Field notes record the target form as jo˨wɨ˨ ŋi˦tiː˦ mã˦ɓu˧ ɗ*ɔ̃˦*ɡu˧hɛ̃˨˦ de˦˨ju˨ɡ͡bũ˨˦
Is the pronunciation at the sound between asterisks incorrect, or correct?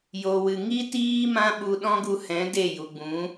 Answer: correct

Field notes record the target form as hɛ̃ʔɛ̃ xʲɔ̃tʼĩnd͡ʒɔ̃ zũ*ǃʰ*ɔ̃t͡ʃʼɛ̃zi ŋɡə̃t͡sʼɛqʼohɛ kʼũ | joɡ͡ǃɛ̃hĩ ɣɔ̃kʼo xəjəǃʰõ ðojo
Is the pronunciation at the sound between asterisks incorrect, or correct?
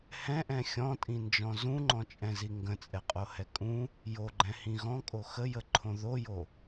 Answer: incorrect: ŋ͡ǃ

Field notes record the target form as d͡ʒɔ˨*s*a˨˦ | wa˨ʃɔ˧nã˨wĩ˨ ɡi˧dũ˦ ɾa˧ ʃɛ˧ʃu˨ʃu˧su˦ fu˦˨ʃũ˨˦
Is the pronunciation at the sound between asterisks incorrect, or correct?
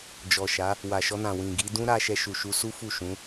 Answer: incorrect: ʃ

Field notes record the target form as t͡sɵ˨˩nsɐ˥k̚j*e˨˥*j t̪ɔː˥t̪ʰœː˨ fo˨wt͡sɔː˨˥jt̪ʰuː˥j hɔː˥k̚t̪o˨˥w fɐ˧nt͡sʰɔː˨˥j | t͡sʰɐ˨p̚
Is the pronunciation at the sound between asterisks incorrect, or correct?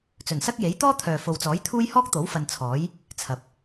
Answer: correct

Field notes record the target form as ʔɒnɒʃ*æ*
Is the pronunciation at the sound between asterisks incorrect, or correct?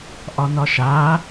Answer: incorrect: a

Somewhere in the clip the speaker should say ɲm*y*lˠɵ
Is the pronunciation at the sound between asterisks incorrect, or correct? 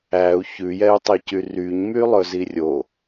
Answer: correct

